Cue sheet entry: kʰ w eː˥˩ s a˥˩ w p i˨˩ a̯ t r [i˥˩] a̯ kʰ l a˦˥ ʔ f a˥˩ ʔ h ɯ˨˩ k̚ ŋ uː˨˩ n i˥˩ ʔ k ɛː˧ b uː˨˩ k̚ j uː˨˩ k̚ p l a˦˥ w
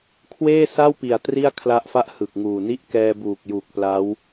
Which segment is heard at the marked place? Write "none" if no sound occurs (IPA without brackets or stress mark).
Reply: i˥˩